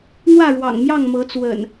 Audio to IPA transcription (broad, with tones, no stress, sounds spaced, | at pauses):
n̪ w ä˥˨ ɻ w ɑ̰˨˩ ŋ m j ɑ˥˨ ŋ m ɤ˨˦ t͡s w ə̰˨˩ n